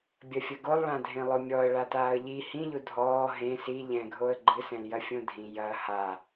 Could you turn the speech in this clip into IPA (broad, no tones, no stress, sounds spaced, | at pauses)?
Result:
bʲ ɐ fʲ ɐ ɡ o lˠ ɭ ã dʱ ẽ lˠ o mʲ ɔ ə̯ ɭ a t aː ə̯ ʎ i h ĩ ʎ u dʱ ɔː ɦ ẽ s i ʎ ɛ̃ ɡʱ o ə̯ ɡ͡ǃ ɨ s ɛ̃ l j ɐ fʲ õ dʱ ĩ j ɐ h a